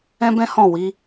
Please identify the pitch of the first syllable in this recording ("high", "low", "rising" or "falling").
high